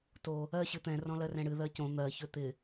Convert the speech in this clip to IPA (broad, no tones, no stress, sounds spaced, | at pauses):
t o | ɜ ɕ ɨ t̪ ɛ̃ r ɔ̃ l ɜ r ɛ̃ ɽ ɨ ð ɜ c õ n̪ ɜ ç ø t̪ ɪ